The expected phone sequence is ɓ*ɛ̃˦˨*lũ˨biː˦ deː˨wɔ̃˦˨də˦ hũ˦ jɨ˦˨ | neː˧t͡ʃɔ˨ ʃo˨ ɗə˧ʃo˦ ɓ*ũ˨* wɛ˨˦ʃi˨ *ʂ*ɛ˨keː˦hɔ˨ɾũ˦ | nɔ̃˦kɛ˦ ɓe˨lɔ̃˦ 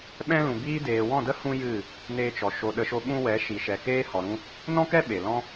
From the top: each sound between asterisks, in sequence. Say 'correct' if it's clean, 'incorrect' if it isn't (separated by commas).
incorrect, incorrect, incorrect